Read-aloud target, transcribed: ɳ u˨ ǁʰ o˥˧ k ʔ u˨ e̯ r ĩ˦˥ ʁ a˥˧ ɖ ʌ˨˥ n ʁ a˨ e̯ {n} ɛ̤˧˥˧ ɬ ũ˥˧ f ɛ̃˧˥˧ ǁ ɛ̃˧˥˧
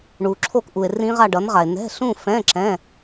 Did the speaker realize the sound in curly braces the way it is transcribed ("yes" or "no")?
yes